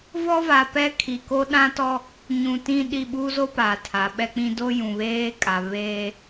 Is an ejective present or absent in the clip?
present